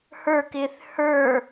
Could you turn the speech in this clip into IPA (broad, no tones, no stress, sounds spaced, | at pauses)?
h ə˞ k ɪː θ h ə˞